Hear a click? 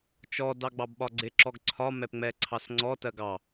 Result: yes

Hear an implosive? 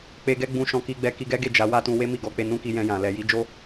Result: no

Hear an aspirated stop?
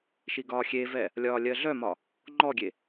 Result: no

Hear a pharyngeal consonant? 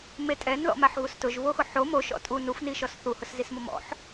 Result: yes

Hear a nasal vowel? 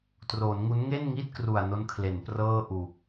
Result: no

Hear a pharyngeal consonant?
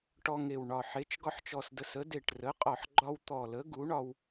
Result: yes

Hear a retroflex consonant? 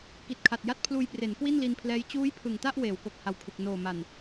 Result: no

